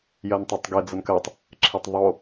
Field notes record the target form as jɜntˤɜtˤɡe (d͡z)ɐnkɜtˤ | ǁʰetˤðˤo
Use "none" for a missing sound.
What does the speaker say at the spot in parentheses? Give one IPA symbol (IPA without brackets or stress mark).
d͡z